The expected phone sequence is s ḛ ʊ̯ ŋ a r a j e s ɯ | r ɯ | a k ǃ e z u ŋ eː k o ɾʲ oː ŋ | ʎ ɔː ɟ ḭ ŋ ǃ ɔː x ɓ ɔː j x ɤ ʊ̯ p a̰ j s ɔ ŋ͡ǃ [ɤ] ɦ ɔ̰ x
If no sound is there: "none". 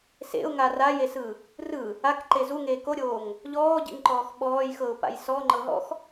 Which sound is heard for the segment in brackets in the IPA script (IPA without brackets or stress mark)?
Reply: ɤ